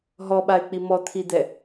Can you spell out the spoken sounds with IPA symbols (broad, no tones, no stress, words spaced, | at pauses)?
ɦɔɓaɪ̯k͡pi mɔt̪ʰid̪ɛ